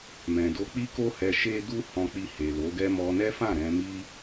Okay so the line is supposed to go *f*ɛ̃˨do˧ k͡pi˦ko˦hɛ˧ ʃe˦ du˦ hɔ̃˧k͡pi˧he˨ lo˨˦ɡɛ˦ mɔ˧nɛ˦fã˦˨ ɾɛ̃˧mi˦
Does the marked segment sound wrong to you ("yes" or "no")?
yes